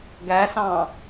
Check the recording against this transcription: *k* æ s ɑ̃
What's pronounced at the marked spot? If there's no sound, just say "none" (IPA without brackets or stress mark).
ɡ